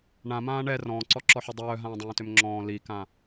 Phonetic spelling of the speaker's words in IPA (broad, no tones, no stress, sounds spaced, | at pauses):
ɳ ã m ãː ɳ ɛ r ɔ̃ː ǀ ɔ ǁ ɔ ħ œ dˤ œː ɦ ãː dˤ œ̃ː t ø m ŋ͡ǁ ɔ̃ː l i k ã